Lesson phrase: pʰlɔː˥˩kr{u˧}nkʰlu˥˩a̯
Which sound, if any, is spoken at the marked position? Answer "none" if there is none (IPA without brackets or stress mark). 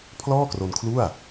o˧